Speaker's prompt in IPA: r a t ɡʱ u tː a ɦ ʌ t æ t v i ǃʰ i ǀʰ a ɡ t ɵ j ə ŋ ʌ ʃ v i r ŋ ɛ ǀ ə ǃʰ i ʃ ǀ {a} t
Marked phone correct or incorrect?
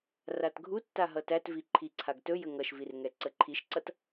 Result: incorrect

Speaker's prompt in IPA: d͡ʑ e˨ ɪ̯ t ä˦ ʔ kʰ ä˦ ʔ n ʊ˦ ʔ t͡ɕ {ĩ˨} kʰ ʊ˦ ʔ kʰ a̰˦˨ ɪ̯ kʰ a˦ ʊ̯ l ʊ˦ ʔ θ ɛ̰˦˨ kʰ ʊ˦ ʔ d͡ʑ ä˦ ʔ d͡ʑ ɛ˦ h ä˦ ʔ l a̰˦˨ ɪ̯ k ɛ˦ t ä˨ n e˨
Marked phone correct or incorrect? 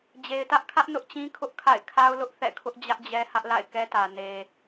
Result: incorrect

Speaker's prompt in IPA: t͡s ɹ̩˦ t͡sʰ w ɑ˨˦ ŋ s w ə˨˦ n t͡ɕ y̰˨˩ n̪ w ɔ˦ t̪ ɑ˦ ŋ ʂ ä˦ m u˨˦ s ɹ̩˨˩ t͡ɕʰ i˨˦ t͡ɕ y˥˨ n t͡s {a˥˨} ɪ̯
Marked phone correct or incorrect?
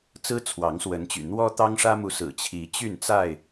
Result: correct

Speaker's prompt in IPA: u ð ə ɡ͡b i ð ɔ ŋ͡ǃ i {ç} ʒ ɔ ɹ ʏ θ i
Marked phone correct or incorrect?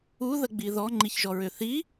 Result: correct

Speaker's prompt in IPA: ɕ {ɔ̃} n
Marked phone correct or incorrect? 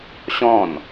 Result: correct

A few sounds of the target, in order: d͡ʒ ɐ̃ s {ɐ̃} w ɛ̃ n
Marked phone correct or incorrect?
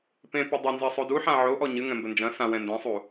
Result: incorrect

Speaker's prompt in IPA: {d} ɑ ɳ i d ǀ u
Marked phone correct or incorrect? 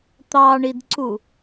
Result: incorrect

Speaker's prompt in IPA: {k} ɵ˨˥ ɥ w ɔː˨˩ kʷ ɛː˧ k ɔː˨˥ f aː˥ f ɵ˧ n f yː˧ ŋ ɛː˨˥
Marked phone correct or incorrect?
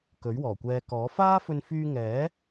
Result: correct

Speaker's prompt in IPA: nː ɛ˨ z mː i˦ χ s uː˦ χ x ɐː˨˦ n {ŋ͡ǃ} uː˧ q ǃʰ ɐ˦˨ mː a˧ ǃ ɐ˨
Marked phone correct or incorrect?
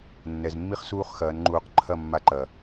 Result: correct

